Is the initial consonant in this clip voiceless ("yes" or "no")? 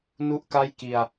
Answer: no